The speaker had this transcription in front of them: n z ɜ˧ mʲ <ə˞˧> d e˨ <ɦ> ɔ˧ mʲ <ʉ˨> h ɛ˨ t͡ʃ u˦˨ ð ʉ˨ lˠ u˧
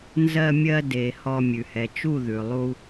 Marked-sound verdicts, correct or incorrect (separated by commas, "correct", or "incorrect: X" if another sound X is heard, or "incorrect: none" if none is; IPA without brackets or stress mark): incorrect: ɜ˧, incorrect: h, correct